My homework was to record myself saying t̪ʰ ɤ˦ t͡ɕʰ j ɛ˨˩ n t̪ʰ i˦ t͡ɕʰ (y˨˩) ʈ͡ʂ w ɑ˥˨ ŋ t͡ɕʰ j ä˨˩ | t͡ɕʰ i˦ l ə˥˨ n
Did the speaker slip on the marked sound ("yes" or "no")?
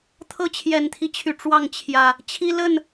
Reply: no